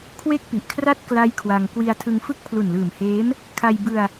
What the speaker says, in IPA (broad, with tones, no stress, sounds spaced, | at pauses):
kʰ w e˥˩ k̚ p i˨˩ ʔ kʰ r a˥˩ t̚ k l a˦˥ j kʰ w a˧ ŋ k w i˧ a̯ tʰ ɯ˧ ŋ f ɯ˥˩ k̚ pʰ l u˨˩ n l ɯː˨˩ m h eː˦˥ m | kʰ a˧ j b ɯ˧ a̯